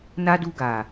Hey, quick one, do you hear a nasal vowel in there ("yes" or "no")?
no